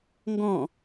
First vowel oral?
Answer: no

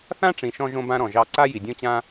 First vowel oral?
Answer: no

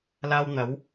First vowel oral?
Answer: yes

